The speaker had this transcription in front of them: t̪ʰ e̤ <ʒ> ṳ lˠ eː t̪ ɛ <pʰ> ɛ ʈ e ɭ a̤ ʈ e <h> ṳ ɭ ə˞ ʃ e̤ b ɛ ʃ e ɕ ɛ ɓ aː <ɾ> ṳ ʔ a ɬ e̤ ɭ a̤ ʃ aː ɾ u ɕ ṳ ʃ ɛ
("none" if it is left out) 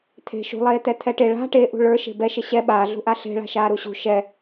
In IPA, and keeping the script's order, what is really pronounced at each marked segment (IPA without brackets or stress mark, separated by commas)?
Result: ʃ, t̪ʰ, ʔ, ɮ